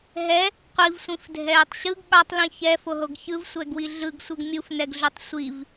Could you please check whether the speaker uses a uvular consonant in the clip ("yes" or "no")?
yes